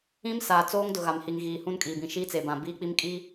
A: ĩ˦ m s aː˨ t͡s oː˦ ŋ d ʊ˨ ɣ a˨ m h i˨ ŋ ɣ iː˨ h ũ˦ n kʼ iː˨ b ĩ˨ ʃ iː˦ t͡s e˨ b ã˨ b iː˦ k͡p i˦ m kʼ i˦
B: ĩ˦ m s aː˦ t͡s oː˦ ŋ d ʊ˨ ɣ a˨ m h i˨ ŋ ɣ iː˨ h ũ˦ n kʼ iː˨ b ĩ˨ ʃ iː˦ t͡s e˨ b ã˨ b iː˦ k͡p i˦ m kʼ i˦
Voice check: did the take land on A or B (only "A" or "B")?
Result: A